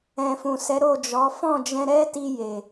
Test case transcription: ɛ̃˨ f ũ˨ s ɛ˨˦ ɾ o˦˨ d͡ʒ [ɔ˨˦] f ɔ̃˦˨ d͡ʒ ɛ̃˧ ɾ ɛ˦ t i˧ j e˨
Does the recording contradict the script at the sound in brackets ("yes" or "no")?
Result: no